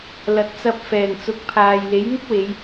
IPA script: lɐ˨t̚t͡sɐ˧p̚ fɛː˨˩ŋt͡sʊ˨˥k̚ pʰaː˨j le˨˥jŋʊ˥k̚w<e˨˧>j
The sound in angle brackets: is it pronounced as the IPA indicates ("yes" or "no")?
yes